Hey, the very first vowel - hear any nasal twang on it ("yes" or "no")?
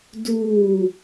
no